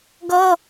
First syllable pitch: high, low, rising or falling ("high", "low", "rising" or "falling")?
high